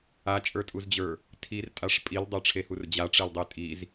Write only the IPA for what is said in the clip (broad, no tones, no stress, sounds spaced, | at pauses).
a t͡ʃʼ ə˞ tʼ u z d͡ʑ ə˞ | tʰ i r tʼ a ʂ pʼ i l dˤ ə˞ ʈ͡ʂʰ e h u r d͡ʑ a ʈ͡ʂ e l dˤ e tʼ i z